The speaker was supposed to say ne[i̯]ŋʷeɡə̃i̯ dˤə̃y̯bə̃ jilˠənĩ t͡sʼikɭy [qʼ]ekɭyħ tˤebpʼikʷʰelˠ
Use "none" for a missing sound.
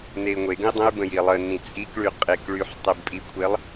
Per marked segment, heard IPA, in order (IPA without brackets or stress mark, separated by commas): i̯, qʼ